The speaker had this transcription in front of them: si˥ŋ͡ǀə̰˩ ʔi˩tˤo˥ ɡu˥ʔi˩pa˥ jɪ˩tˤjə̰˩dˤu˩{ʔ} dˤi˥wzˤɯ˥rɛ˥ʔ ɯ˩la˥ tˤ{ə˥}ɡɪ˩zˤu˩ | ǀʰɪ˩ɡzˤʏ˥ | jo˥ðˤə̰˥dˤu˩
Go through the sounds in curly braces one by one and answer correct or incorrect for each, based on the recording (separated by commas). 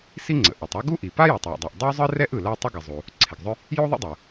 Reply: correct, correct